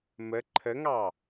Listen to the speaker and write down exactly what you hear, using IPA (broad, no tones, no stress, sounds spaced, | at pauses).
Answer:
m ə ǃʰ ə ŋ ɑ